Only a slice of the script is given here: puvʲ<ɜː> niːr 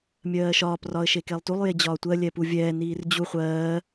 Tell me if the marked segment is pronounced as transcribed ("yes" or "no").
no